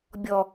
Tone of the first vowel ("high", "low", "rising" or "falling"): low